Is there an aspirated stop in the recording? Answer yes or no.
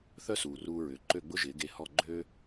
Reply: no